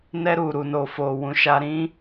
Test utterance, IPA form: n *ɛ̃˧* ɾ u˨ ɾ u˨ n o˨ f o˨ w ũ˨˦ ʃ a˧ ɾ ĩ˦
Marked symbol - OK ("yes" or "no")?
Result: no